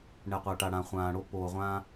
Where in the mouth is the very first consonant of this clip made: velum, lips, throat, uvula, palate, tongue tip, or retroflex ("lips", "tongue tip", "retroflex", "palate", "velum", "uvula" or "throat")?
retroflex